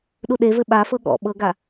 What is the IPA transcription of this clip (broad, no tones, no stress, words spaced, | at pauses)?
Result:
ɗuɗevɘ ɓafɤ ɠɔ̰ ɓɤɡa